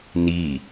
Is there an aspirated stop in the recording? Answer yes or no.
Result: no